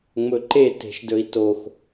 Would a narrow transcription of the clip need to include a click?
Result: yes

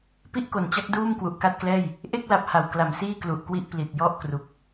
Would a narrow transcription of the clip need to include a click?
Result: no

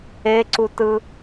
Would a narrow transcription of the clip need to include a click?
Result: yes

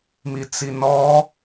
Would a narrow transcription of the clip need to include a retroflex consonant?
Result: no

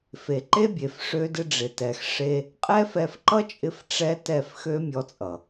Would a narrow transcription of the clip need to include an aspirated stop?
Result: no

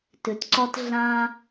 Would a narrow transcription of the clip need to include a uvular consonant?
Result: no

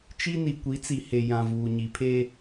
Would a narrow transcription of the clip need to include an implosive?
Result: no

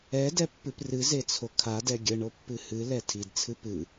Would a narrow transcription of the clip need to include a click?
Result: no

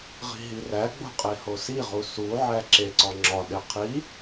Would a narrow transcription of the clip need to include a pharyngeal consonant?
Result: yes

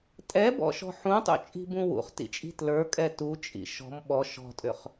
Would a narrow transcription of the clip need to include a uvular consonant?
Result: yes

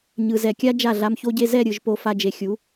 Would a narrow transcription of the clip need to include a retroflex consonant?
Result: no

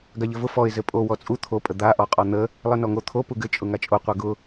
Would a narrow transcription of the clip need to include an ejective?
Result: yes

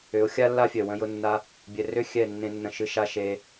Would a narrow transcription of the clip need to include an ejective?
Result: no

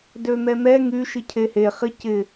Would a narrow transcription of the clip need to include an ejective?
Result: no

